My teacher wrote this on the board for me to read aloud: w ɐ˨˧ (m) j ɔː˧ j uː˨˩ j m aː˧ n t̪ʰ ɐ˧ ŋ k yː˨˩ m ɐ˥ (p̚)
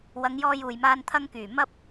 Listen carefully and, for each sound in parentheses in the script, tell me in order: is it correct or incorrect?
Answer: incorrect, correct

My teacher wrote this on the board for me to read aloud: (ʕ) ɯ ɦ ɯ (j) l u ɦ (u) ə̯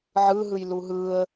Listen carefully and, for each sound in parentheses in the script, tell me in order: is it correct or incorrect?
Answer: correct, correct, incorrect

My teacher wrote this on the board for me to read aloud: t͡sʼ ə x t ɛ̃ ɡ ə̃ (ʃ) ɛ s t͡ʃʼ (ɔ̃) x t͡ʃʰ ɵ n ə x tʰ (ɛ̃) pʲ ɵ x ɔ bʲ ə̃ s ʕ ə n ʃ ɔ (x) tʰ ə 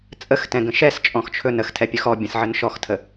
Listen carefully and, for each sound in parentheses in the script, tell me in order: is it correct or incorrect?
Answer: correct, correct, incorrect, correct

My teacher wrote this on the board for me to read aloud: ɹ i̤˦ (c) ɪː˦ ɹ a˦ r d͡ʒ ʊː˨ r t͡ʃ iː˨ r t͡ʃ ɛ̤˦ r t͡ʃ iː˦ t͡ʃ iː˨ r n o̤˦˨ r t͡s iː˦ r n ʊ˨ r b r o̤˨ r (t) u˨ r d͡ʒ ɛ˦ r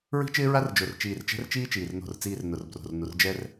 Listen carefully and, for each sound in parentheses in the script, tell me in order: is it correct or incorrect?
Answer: incorrect, incorrect

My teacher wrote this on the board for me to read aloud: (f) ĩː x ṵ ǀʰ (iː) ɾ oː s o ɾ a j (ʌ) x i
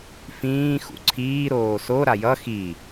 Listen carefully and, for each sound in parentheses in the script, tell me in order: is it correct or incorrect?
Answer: correct, correct, correct

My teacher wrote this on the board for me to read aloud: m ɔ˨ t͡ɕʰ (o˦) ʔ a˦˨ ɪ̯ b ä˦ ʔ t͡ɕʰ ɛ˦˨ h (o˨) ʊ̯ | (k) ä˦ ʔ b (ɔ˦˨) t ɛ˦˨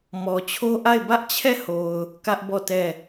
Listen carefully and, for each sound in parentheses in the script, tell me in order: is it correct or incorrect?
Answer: correct, correct, correct, correct

